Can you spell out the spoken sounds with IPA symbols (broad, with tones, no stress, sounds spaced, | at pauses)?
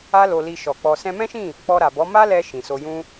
a˦ l o˧ l i˧ ʃ ɔ˨ k͡p ɔ˧ s ɛ̃˧ m ɛ̃˦ ʃ ĩ˦˨ | k͡p ɔ˧ ɾ a˨ b ɔ˨˦ m a˦ l ɛ˧ ʃ ĩ˨ s o˧ j ũ˦